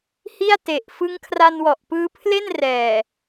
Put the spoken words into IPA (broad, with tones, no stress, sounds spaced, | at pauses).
h i˥˩ a̯ t e˨˩ ʔ f ɯ˦˥ ŋ kʰ r a˧ n w ɔ˨˩ ʔ p ɯː˦˥ pʰ l e˥˩ n r ɛː˨˩